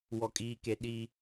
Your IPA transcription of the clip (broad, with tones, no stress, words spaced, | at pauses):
wɔ˦kʼiː˦ke˦ ɗi˦